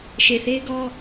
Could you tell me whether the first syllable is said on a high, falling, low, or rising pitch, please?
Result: low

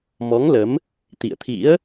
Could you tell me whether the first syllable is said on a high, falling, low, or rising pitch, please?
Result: rising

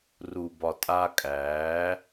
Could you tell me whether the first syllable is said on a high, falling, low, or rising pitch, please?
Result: low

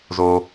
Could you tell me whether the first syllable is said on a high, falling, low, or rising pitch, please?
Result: low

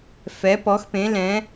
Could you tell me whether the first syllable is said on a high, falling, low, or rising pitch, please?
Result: rising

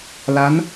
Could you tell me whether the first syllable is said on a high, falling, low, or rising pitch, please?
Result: rising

